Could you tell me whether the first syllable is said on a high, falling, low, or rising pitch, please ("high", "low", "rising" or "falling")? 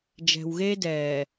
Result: low